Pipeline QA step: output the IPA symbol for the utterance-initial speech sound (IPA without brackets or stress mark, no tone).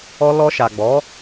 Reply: ɔ